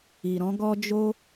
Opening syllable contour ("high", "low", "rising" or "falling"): low